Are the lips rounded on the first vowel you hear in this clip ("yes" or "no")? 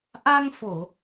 no